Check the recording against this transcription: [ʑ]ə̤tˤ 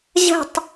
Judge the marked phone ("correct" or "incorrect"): correct